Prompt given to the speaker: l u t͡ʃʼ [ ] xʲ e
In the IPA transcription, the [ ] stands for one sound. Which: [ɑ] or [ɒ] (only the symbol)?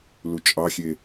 ɑ